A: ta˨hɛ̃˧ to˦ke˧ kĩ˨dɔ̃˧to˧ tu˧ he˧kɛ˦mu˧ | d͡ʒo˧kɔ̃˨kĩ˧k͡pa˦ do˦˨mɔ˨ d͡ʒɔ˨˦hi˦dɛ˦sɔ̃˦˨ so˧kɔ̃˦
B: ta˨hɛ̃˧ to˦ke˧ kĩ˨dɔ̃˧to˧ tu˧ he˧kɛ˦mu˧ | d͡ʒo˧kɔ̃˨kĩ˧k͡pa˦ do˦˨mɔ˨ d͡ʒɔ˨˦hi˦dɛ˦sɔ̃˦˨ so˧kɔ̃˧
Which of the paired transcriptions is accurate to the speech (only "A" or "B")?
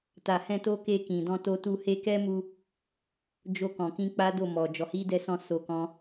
A